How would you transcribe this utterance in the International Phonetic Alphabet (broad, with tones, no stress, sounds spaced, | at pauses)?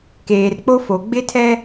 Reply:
k eː˨ r k͡p o˦ f o˨ ɡ͡b ɪ˦ tʰ ɛ˦